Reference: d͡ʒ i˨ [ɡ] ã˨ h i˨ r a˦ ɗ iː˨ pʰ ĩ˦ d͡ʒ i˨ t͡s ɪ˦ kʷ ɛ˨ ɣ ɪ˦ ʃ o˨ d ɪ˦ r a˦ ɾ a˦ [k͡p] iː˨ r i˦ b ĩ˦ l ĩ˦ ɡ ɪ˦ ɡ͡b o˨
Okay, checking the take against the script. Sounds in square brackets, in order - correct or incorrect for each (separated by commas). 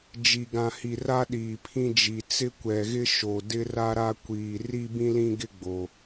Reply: correct, incorrect